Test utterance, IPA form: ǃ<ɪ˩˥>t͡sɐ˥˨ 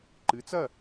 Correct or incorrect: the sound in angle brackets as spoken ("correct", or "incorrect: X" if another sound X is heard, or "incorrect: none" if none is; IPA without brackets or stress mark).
incorrect: ɨ˩˥